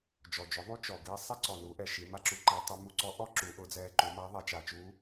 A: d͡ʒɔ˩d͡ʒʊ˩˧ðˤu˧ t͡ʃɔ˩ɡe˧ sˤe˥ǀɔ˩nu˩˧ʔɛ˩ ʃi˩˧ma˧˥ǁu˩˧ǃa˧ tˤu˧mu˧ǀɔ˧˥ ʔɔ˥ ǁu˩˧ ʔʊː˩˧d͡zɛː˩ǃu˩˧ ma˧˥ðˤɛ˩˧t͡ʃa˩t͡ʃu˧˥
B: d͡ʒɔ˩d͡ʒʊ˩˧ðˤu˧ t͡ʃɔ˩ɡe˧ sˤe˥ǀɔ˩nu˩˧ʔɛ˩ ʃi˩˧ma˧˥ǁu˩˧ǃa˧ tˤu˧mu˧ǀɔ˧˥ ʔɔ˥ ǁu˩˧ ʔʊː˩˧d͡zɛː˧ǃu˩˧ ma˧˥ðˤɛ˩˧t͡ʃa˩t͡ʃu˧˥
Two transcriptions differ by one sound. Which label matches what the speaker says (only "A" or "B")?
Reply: B